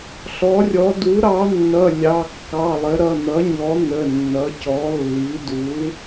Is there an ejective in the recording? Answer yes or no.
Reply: no